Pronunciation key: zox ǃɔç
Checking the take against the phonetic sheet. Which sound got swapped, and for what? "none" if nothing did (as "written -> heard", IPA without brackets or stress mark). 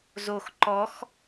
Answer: ç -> x